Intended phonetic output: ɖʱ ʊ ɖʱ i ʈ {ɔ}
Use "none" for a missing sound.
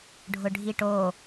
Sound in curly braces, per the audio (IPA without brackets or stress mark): o